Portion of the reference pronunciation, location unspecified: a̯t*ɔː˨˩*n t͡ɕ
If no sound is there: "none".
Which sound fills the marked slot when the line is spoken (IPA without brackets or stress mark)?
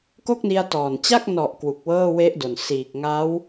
ɔː˨˩